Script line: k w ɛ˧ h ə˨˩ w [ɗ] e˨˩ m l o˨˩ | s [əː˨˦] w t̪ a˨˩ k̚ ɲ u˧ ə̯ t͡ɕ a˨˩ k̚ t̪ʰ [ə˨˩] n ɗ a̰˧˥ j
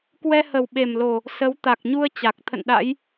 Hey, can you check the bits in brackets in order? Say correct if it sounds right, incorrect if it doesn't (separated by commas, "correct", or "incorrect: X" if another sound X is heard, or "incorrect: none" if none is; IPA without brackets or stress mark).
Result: incorrect: ɓ, incorrect: ə˨˦, incorrect: ə̰˧˨